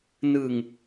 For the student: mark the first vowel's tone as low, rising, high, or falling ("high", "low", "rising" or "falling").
low